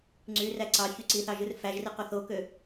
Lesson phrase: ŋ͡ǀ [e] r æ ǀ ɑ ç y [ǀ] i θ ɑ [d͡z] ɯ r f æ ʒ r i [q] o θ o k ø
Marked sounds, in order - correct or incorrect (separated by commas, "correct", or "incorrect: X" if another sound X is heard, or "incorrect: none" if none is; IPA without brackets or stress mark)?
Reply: incorrect: y, correct, incorrect: ʒ, correct